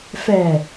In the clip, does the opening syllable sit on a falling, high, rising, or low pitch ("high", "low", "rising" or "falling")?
low